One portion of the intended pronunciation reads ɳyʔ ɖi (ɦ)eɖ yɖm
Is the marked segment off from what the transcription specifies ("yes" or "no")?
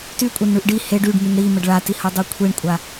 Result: yes